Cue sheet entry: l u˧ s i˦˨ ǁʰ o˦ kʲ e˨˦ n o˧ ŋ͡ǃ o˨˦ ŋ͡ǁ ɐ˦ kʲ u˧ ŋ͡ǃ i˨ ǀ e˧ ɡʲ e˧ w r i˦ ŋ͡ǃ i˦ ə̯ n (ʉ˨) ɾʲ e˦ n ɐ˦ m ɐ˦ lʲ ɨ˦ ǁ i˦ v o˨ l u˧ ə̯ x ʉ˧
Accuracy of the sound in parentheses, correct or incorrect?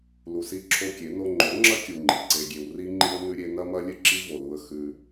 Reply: incorrect